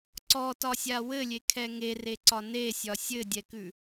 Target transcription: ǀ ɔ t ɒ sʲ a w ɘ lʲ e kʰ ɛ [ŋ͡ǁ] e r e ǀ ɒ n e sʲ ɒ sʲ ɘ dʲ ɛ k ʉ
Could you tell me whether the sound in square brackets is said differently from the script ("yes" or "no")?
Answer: yes